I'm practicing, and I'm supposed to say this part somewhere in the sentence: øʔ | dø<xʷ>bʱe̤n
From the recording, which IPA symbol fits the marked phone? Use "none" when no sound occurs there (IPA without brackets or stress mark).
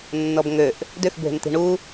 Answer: x